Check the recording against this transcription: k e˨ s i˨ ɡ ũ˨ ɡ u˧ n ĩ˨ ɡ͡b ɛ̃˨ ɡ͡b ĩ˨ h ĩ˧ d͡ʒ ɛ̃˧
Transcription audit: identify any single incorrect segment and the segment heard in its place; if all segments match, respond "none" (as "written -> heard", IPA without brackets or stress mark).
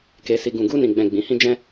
none